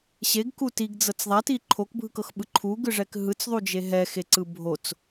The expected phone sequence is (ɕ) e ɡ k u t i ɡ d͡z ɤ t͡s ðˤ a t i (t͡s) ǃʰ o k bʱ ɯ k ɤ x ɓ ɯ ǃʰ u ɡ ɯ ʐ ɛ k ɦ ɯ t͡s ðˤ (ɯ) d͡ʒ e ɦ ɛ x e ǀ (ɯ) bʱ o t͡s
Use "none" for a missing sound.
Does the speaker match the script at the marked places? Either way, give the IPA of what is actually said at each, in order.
ɕ, none, u, ɯ

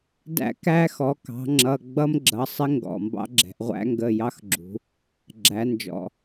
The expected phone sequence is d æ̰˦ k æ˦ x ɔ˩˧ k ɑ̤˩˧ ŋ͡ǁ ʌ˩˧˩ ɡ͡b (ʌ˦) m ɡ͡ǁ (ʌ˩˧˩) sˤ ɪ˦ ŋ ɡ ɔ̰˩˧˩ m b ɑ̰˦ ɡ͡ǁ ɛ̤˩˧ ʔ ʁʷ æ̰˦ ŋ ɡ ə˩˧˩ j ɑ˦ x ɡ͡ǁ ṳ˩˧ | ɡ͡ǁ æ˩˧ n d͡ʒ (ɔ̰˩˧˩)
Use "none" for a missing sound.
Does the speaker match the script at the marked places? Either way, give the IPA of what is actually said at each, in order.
ʌ˦, ʌ˩˧˩, ɔ̰˩˧˩

